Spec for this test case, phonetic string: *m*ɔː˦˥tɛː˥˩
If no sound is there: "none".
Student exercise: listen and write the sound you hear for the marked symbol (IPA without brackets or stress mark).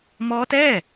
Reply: m